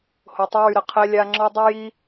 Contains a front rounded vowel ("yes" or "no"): yes